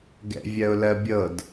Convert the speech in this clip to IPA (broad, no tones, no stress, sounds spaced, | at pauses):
ɡ ɛ̰ vʲ ɜ ʊ̯ l ɜ bʲ ɤ d